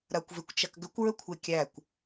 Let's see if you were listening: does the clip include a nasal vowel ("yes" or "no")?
no